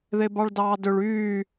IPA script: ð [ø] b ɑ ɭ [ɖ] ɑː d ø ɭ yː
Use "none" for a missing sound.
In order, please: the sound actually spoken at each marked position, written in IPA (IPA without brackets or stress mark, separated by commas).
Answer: e, d